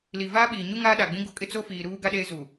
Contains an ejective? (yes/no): yes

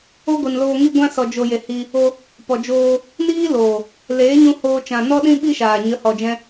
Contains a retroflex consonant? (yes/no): no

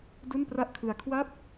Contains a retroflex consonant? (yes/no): no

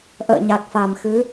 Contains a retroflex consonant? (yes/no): no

